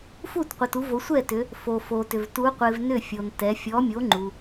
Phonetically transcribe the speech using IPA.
fu˥˩tqʷɪ˨t u˨˦vo˨˦sʷɛ˥˩tʏ˨˦ | fo˨fo˨tʏ˨v tu˨˦ qʷɪ˨v nʏ˥˩fʲo˨ntɛ˨˦ fʲɔ˨˦mʲo˨˦ ŋ͡ǃu˨

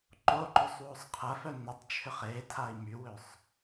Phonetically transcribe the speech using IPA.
ǃo ǃosˤwosˤqʰɐfœ nʏtˤt͡ʃʰʏχ e tʰai̯mywøsˤ

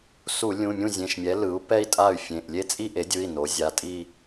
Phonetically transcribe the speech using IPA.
su˧˩˧ lʲũ˩˧˩mʲũ˥˩zʲẽ˩˧˩ʃmʲɛ˩˥ lɯ˩˥u̯pɛ˥˧i̯tʼa˥˩y̯ fʲẽ˩˧˩ʔlʲe˥˧t͡sʼi˥˧ ʔe˩˥dʲɯ˩˧˩i̯ no˩˥ zʲa˩˧˩tʼi˥˧

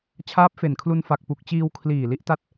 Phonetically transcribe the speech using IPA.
t͡ɕʰaː˦˥p̚fe˨˩nkʰlu˧n fa˨˩k̚pu˨˩k̚t͡ɕiː˧w kʰliː˨˩li˦˥ʔta˦˥t̚

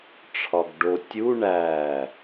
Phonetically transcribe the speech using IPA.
ʈ͡ʂʰɒɡɖo tʲu ɳæ

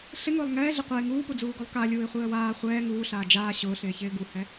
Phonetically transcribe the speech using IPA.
ɬɪŋʊːlˠ ŋɛːɮɪ qʷɛɪ̯ ŋuːpud͡zuːɡolˠ ka lʲuːɪ̯χʷɪːə̯waː χʷɛː ŋuːɬaː d͡ʒaː ɕʊːɬɪːçɪː ɡuhɛ

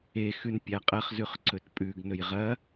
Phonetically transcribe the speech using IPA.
exʉn pʲaqʼɐχzʉχ ǀɵtpʼʉɡnɵj ʁɐ

